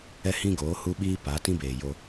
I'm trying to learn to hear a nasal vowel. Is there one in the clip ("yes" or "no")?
yes